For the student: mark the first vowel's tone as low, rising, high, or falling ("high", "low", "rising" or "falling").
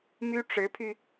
high